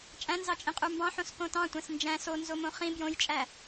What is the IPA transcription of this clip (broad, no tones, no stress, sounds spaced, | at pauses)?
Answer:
t͡ʃʼ æ̃ n z ɑ t͡ʃʼ ĩ qʼ u m b ɑ̃ ħ õ s k õ t ɑ̃ tʷ æ̃ s n d͡ʒ æ̃ s o n z o m õ χ ĩ b j õ j t͡ʃʼ æ